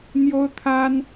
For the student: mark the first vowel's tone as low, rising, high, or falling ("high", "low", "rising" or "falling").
high